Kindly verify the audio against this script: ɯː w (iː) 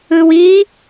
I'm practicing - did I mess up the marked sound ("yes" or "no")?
no